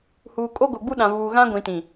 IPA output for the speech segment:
huː˨kʼo˦ɡo˨ɡ͡bu˦ ɗã˨vuː˨ ɣã˦ɡʷĩ˨tĩ˨

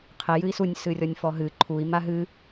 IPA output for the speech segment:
qʰe jɨi̯sunʲ sɨrʲɔnʲfɔɦɨ ǃʰui̯ maɦɨ

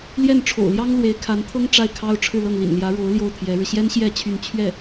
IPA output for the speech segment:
ljɛ˥˩nʈ͡ʂʰo̰˨˩ʊ̯ljɑ˥ŋ lwe˧˥ɪ̯kʰa˧˥nt̪ʰɤ˥ŋ ʈ͡ʂa˥˩ɪ̯kʰɑ˥ʊ̯ ʈ͡ʂʰɻ̩˥˧lɤ˥˩ŋlḭ˨˩n ljä˧˥ɻo˧˥ʊ̯ ljo˥˩ʊ̯t̪ʰjɛ˧˥ɻɻ̩˧ ɕjɛ˥nɕjɛ˥˧ t͡ɕʰy˥˧n t͡ɕʰɥɛ˥˩

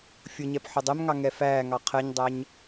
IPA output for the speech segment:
fʲʊɲɛp ħʊdˤɛm ŋɑŋɛfæːŋɑ qʰɜɲdˤæɲ

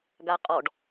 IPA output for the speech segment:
ɡaqʼɔɖ

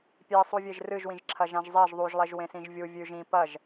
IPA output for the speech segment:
pʲesˤuvʲeʒ rɨʒwĩʒǁʰɐ ʒãʒzˤeʒ ðˤuʒlˠeʒ wẽsĩʒvʲu vʲʉʒ ĩ pɐʒ

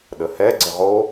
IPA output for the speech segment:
ɗəhɛ ɡ͡ǀəʁo

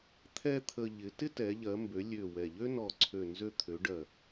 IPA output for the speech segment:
t̪ʰɛ˥t̪ʰə˧ ʎɪ˩˧ tɪ˥tɛ˩˧ʎɜ˩˧ mbø˩˧lʲø˨˩ wɛ˨˩ʎø˥ nɔ˨˩ ǀʰø˨˩nzø˧t̪ʰø˩˧ ɖɜ˨˩

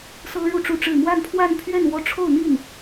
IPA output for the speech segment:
sɤ˥ɻu˥˧ʈ͡ʂu˥˧ʈ͡ʂɻ̩˥˧ mwa˥˧npʰwa˥˧npʰɥɛ˥˧n wɔ˥˧ʈ͡ʂʰo˥˧ʊ̯n̪i˥˩n

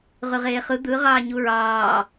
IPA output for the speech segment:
ʁyʁeːχɯ d̪ɯ ʁɑːɲuɹɑː

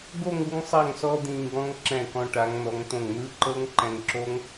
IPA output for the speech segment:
ɡo˥˧ŋ u˥ŋsˤa˥˧ŋsɔ˥ d̪ĩː˧ɡɔ̃˥ŋ ǁɛ̃˧˩kɔ̃˧ ʈa˩˧ŋn̪ɔ˩˧ŋ t̪õ˧˩ŋn̪ɯː˥ ǃɤ˥ŋǃɛ̃˧ŋǁo˥ŋ

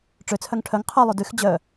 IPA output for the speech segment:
ʈ͡ʂøt͡sʰœŋ ʈʰœŋ qʰœlˠʉ dyx d͡ʑœ

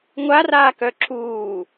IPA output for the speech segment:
ŋʷaraːkœ ǁuː

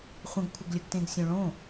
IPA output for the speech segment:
χʷə̃ɡkʷʰəɡlʲəɡtẽɡ sʲõɭõ

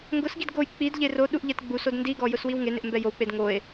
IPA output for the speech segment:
ŋɡʊsɡid ɡoj k͡pid ʎeroɗuʔ ʎɛtɡ͡busod ndiɡɔ jʊswiwŋenɪʔ mbɛjowk͡ped ŋoe̯

